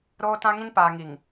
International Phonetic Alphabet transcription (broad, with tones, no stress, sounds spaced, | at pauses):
ɾ oː˦ t ã˦ ŋ ĩ˦ n p aː˨ ŋ i˨ ŋ